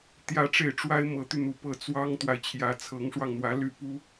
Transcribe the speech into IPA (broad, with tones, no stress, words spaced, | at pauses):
t̪jä˥˧ʈ͡ʂe˥˩ɪ̯ ʈ͡ʂwa˥ɪ̯mɤ˧˥t̪y˧n̪u˨˩ pɤ˥˩t͡swɑ˥ŋt̪wa˨ɪ̯ t͡ɕʰjä˧˥t͡sʰɤ˧˥ŋʂwɑ˧ŋn̪wä˧˥ ly˥˩pu˥